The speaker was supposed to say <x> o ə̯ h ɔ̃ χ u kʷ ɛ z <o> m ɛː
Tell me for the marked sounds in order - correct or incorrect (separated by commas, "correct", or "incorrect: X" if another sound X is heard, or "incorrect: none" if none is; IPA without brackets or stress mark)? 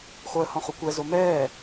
correct, correct